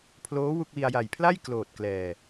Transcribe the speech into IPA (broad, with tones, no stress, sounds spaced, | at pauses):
pʰ l oː˦˥ w u˥˩ k̚ w i˧ a̯ j a˨˩ j pʰ l a˥˩ j k l oː˨˩ t̚ k l ɛː˨˩